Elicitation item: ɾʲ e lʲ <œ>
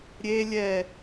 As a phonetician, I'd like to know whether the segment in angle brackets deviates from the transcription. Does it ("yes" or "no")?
yes